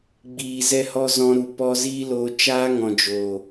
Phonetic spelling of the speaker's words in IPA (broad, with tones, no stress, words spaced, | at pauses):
ɡ͡biː˨zɛ˧hɔ˦ zɔ̃˧ɾu˨pɔ˦ ziː˦loː˧ t͡ʃaː˦ŋɔ̃˨d͡ʒoː˨